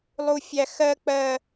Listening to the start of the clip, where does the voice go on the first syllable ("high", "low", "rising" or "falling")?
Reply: high